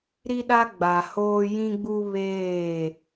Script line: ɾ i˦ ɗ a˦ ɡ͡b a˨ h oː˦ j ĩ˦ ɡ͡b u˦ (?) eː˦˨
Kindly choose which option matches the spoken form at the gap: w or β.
β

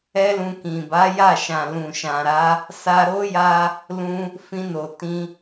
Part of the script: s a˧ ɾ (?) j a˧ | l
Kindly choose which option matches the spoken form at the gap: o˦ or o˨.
o˦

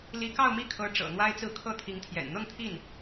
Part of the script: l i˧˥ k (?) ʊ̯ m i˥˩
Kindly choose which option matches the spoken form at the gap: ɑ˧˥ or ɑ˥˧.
ɑ˥˧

